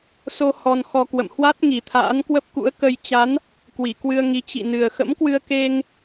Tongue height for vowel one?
mid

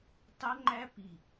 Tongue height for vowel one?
mid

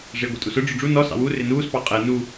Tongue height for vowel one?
high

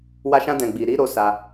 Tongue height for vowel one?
low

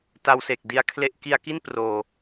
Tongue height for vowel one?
low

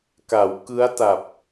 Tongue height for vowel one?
low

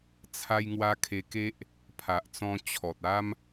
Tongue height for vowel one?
low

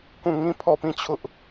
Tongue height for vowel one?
high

